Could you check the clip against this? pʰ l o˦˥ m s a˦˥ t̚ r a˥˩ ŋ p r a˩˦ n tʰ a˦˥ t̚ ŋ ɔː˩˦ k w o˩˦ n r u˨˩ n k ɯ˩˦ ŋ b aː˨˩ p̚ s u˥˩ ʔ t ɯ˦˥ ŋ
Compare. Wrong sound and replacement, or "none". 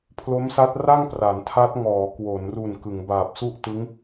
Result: none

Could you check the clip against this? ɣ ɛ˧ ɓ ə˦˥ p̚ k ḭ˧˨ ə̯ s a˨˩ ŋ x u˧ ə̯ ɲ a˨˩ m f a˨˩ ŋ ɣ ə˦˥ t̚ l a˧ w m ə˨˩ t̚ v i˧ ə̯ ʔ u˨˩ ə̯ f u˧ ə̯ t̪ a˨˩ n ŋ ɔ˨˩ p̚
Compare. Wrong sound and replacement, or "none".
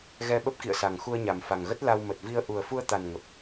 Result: ɔ˨˩ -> ə˨˩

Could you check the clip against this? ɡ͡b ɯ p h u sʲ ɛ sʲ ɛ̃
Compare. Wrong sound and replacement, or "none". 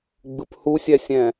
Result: none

